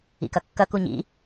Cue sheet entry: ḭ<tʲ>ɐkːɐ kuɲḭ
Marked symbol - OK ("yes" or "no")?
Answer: no